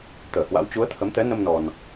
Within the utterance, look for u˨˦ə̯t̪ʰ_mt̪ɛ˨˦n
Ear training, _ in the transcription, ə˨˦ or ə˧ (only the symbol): ə˨˦